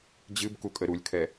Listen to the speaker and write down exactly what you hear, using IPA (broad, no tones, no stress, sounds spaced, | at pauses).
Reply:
d͡ʑ ɨ b k u kʼ ə ɾ u lʲ kʰ ɛ